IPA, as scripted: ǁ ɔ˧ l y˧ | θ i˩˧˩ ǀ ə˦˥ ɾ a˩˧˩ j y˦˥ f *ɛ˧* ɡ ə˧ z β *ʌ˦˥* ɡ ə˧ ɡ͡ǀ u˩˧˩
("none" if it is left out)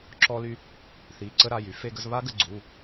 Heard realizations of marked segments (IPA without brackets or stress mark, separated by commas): e˧, a˦˥